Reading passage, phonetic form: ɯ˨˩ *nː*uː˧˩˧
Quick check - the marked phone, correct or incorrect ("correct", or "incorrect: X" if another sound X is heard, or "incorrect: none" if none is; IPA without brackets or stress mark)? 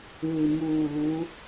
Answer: incorrect: m